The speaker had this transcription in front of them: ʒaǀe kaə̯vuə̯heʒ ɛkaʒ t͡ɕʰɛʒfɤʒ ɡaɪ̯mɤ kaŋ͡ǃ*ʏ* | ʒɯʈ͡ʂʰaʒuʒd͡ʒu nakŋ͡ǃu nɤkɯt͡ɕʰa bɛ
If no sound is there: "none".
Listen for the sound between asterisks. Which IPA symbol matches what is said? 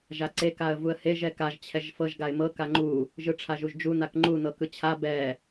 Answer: u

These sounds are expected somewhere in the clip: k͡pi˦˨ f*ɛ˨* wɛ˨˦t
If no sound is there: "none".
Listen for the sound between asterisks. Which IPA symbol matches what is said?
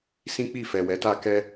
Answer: ɛ˨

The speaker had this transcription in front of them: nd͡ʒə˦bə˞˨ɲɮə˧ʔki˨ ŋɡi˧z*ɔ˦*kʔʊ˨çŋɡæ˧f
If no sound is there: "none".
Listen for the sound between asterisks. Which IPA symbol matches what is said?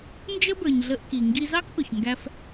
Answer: ɑ˦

